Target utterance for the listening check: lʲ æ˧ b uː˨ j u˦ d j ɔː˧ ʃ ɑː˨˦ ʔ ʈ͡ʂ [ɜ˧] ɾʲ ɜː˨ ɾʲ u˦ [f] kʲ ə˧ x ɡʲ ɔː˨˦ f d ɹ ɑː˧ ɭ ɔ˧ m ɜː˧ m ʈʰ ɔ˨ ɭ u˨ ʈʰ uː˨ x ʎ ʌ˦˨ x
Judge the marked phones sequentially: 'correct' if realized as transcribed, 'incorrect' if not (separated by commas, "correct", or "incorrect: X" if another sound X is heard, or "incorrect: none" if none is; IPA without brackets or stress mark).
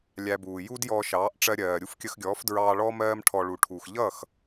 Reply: correct, correct